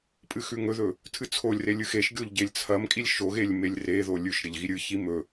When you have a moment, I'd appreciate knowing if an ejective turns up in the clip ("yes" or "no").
yes